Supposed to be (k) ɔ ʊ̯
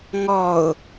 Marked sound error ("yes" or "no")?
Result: yes